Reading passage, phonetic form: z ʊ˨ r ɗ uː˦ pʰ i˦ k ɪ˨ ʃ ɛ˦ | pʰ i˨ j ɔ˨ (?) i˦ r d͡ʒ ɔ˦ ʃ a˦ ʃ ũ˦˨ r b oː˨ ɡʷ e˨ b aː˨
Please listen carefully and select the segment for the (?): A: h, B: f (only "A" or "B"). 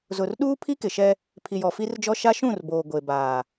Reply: B